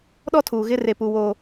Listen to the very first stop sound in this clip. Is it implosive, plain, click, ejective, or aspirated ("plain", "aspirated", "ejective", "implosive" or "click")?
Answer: implosive